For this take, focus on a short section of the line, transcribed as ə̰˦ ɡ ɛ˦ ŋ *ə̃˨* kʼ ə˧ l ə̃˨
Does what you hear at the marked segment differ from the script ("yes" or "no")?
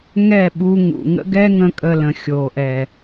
yes